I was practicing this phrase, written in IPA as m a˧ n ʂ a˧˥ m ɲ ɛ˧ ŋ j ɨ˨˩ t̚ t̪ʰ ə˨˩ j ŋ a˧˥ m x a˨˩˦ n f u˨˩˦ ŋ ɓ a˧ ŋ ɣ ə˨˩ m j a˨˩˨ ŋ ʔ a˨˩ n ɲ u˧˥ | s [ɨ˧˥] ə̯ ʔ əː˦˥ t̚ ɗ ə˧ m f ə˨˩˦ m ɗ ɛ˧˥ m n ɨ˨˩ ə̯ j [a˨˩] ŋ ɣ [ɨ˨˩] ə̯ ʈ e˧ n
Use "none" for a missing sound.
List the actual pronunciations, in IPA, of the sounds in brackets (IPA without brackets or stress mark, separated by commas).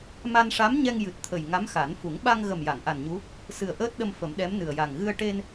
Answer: ɨ˨˩, a˨˩, ɨ˧